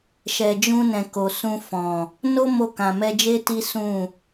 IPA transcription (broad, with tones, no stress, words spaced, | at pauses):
ʃɛ˨d͡ʒũ˧nɛ̃˨ ko˨ sũ˧ fɔ̃˨ | no˦mo˧ kã˨mɛ˧d͡ʒe˦ ti˦sũ˦˨